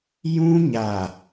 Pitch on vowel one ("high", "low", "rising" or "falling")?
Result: high